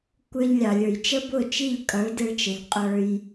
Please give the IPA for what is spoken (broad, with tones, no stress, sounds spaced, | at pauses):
kʷ ə˞˧ ʎ lʲ ɑ˨ lʲ ə˞˨ j t͡ʃ ə˦ b ʊ˦˨ t͡ʃ i˦˨ ʎ kʼ ʌ˨˦ ɭ d ɪ˧ ɭ t͡ʃ ə˨ ʎ qʼ ə˞˦ j